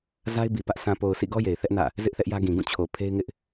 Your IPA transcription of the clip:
z a˦ ɪ̯ b i˨ p ä˦ ʔ s ã˨ p o˨ ʊ̯ s ḭ˦˨ ɡ ɔ˦ j e˨ ɪ̯ θ ɛ˦ ʔ n ä̰˦˨ | z ɪ˦ ʔ θ ɛ˦ ʔ j ä˦ ɡ ĩ˨ ɡ ũ˦˨ t͡ɕʰ o˨ pʰ e˦ ɪ̯ ŋ ɪ˦ ʔ

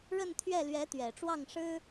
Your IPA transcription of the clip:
ɻ ə˥˧ n t̪ʰ ɥ ɛ˥˩ l ɥ ɛ˧˥ t̪ ɥ ɛ˨˩ ʈ͡ʂ w ɑ˥˩ ŋ ʂ ɻ̩˥

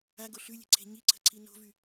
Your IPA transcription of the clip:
a ɡ o ɬ ʉ lʲ e̤ ǀʰ e̤ ɲ i ǀʰ ə̤ ǀʰ i n o̤ v y

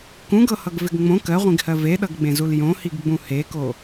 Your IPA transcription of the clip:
k ũ ɡ ɤ h ʌ ɡ v ɪ ɡ ŋ͡m õ k ɜ ʁʷ ĩ ɡ h ɜ v e ɗ ʌ ɡ ɡ͡b ẽ z u l j õ h i ɡ ɡ͡b ũ h e k o

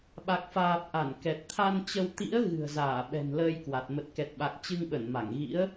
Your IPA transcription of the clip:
ɓ a˨˩ k̚ f aː˨˩ p̚ ʔ a˧˩ n k ɛ˨˩ t̚ t̪ʰ a˧ n t͡ɕ ə˧ w t̪ ḭ˧˥ ə̯ ɣ ɨ̤˨˩ ə̯ z aː˧˩ ɓ ɛ̤˨˩ n l əː˧ j k w a˨˩ t̚ m ə˨˩ t̚ k ɛ˨˩ t̚ ɓ a˨˩ k̚ t͡ɕ ɨ˧ ŋ ɓ ə˧˩ n m a˧˩ ŋ ɣ ḭ˧˥ ə̯

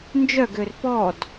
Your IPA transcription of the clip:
n d͡ʒ œ ɡ ø r p ɔ d

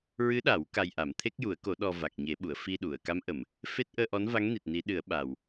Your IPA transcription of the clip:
ɹ ɨ˧˥ ɗ a˨˩˦ w k a˧ j ʔ a˨˩˦ m t̪ʰ e˦˥ k̚ j u˨˩˦ ə̯ k o˨˩˦ ɗ ɔ˧ v a˨˩ k̚ ɲ e˨˩˦ ɓ u˨˩˨ ə̯ f i˧ ɗ u˨˩˨ ə̯ k a˧˥ m ʔ ə˨˩˨ m | f e˦˥ t̚ ʔ əː˧ ʔ ɔ˧˥ n v a˧˥ ŋ n i˨˩ t̚ n i˨˩˦ ɗ ɨ˨˩˦ ə̯ ɓ a˨˩ w

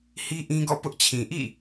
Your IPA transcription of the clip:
h i˦ ʔ ĩ˦ ɡ ɔ̰˦˨ p ʊ˦ ʔ t͡ɕʰ ĩ˨ ʔ ḭ˦˨

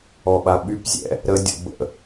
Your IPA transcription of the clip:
ɔ ɓ a ɓ y p zʲ ɛ̰ | ɾ ə dʲ ɔ̰ b ə̰

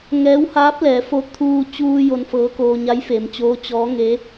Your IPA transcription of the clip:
ŋ ɛː˧˥ w h aː˧˥ p̚ l ɛː˩˧ f o˧ t̪ʰ uː˧ t͡ɕ uː˧ j o˧˥ n f ɤː˧˥ k oː˧ ɲ a˧˥ j f e˩˧ m t͡ɕ oː˧˥ t͡ɕ ɔː˧˥ ŋ e˧˥

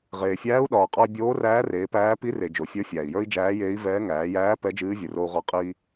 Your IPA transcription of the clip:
ʁ eː˩ fʲ æː˧˥ u̯ ɗ ɒː˩ qʼ ɒ˧ i̯ bʲ oː˧˥ r æː˧˥ r eː˩˧ p æː˧˥ p i˧˥ r e˩ d͡ʒ o˩ fʲ ə˞˧˥ fʲ æː˩ i̯ j ə˞˥ i̯ d͡ʒ æː˧˥ j eː˧˥ i̯ v ɛː˧˥ ŋ æː˩˧ j æː˧˥ p ɛ˧˥ d͡ʒ ɨː˧˥ vʲ ɨ˩ r o˧ u̯ ʁ ɒ˧ qʼ i˧

